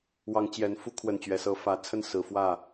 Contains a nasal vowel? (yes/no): no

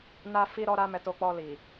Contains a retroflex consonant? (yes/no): no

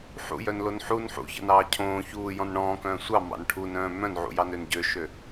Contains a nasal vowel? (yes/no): yes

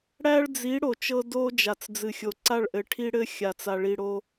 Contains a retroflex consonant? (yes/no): yes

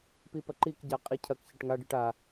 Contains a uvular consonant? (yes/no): yes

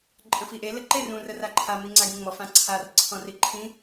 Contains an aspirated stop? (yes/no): yes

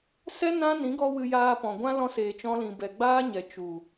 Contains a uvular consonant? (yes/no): no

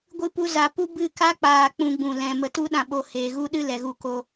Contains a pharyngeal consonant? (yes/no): no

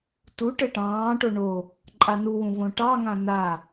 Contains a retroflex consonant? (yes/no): yes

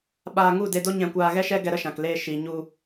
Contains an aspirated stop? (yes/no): no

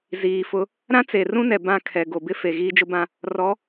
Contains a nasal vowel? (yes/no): yes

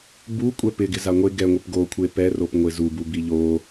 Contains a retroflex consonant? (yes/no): no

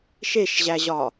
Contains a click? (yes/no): no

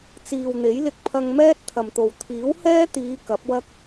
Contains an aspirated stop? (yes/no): yes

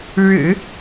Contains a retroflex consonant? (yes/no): yes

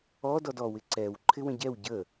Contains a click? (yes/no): yes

